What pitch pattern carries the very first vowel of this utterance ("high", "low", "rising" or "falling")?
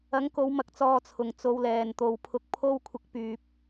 rising